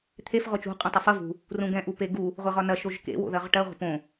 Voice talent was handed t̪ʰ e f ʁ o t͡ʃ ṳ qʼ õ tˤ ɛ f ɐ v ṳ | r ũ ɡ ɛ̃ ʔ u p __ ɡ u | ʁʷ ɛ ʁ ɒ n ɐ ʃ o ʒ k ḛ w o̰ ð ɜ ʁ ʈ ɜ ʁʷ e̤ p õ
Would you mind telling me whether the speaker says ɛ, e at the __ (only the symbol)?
e